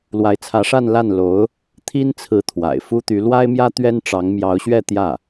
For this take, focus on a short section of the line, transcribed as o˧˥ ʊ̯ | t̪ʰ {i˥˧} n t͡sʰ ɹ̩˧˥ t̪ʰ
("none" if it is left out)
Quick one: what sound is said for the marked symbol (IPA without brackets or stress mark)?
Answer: i˥